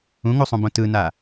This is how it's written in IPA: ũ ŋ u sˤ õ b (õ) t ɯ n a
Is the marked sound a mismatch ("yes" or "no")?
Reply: no